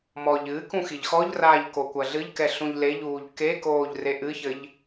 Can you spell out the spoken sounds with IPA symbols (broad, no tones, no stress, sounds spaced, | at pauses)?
m ɔ ʎ ɨ k ũ x i ʎ x ɔ ʎ r aː ʎ k o kʷ ɐ ɮ ɨ ʎ k ɛ ɬ ũ ʎ l e ʎ uː ʎ k e k oː ʎ r e ʔ ɨ ç ɘ ʎ